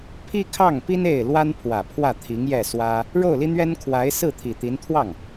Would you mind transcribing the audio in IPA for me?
pʰ i˥ kʰ ɑ˥˩ ŋ p i˥ n e˥˩ ɪ̯ l w a˥ n pʰ w ä˨˩ pʰ w ä˥˩ t̪ʰ i˧˥ ŋ j ɛ˥˩ s w ä˥ | ɻ o˥˩ ʊ̯ l i˥ n̪ ɥ ɛ˥ n kʰ w a˧˥ ɪ̯ s ɹ̩˥˩ t̪ʰ i˨˩ t̪ i˧˥ n t̪ʰ w ɑ˥˩ ŋ

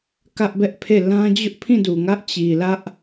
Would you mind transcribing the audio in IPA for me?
k ä˦ ʔ b ɛ˦ ʔ pʰ e˦˨ l ã˦ d͡ʑ ʊ˦ ʔ pʰ ĩ˦˨ d u˨ ŋ ä˦ ʔ t͡ɕ i˨ l ä˦ ʔ

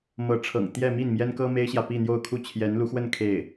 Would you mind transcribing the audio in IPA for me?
m ɤ˧˥ ʈ͡ʂʰ ɤ̰˨˩ ŋ t̪ j ɛ˥˧ m i˥˩ n m j ɛ˥ n k ɤ˥ m e˥ ɪ̯ ɕ j ä˨ p i˥˧ n̪ j o˥˧ ʊ̯ kʰ u˥˩ t͡ɕʰ j ɛ˧˥ n l u˧˥ x w ə˥˧ n kʰ e˥˩ ɪ̯

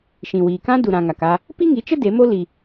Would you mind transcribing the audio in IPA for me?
ʃ ĩ˨ w iː˨ k ã˦ d u˨ ɾ ã˨ ŋ a˨ k a˧ | p i˦ ŋ i˨˦ t͡ʃ ə˦ d e˨˦ m o˦ l i˧

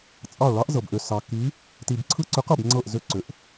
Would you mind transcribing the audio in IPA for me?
t͡sʼ ɑ˦˨ ɭ ɑ˧˥ ʔ z ɤ˨ b ʔ ʏ˨ s ɑ˨ kː i˧˥ | t i˨ b ǀʰ ɯ˦˨ ǀ ʏ˧˥ q ɤ˦˨ b ŋ͡ǀ ɤ˦˨ ʔ z ʏ˧˥ ǀ ʏ˨ ʔ

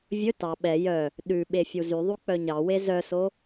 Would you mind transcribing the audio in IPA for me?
vʲ ɵ t ɑ ɓ ɛ j œ | ɗ ʉ ɓ e fʲ u z y ðˤ u k͡p œ ɲ ɑ w e z œ s o

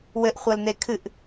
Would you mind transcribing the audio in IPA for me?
w ɘ ʔ χʷ ɐ l n e kʰ ɨ ʔ

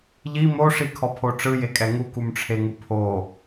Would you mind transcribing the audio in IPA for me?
ʎ i m o ʂ i kʰ ɔ pʰ o ʈ͡ʂ ɯ j e kʼ ɛ ŋ u k u m ʈ͡ʂʰ e ŋ u pʰ o

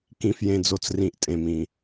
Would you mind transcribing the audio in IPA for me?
k ĩ˩ f j ẽ˩ d͡z o˩ t͡s r ĩ˩ ʔ tʼ ẽ˩ m ĩ˩

